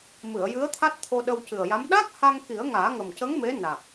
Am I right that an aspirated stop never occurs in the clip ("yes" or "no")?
no